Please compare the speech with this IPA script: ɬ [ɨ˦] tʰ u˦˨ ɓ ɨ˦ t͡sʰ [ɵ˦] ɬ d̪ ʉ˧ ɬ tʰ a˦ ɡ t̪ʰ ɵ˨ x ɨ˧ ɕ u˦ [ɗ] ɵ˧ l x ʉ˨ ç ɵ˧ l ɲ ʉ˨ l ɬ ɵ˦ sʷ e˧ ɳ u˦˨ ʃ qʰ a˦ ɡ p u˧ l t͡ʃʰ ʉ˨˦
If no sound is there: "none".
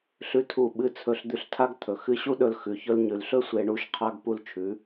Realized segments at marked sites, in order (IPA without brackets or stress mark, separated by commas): ʉ˦, ɵ˧, ɗ